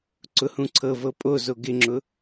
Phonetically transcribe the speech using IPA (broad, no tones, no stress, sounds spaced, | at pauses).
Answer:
ǀ ʊ h ũ ǀʰ ɤ v ɤ pʼ o z o ɡ ɪ ŋ͡ǁ ʊ